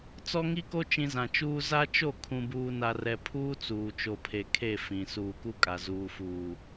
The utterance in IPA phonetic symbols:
t͡s ɔ˦ ŋ i˦ k o˦ t͡ʃ ĩ˨ z ã˨ t͡ʃ uː˦ z a˦ t͡ʃ o˦˨ kʰ ũ˨ b uː˨ n a˨ r ɛ˨ pʰ uː˦ t͡s uː˨ t͡ʃ o˨ pʰ e˨ kʰ e˦˨ f ĩ˨ s uː˨ k u˦ kʼ a˨ z uː˨ f uː˨

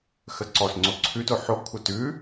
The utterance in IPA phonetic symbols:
x ə ǀ ɔ s ŋ͡ǀ o ǀʰ ʉ t o ħ o ɡ kʷʰ ə t ʉ

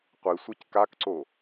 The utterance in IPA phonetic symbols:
qʷ i sʷ i c k a k ǀ o

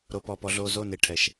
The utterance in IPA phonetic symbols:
ɾ o˨ p ɔː˨ p ɔ˨ ɮ oː˨ z oː˦˨ n e˨ ʈʰ ɛ˨ ʃ

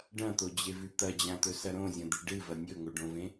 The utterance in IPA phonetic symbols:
ɖ ɐ̃ t̪ o d͡ʑ e v ʉ t̪ ɐ d͡ʑ ã t̪ ɵ s ɐ ɾ õ zʲ ɐ̃ d̪ i ɖ ɨ v ɐ nʲ ɵ ŋ o ɖ õ v ẽ

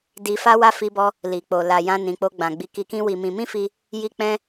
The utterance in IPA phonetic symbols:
d i˧ f a˦ w a˦ f i˦ b ɔ˦ | l i˨ k͡p o˨ l a˨ j ã˧ n ĩ˨ k͡p o˧ ɡ͡b ã˨ ɡ͡b i˧ k i˧ k ĩ˦ w i˧ m ĩ˧ m ĩ˦ f i˧ | j i˦ k͡p ɛ̃˦

